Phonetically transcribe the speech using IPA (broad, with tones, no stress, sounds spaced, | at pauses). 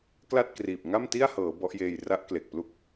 k l a˥˩ t̚ k r iː˨˩ p̚ ŋ a˥˩ m t i˥˩ a̯ h ɤː˩˦ b ɔ˦˥ ʔ j eː˧ j r a˦˥ ʔ k l e˨˩ k̚ p l u˦˥ k̚